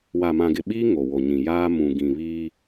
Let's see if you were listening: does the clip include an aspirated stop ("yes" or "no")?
no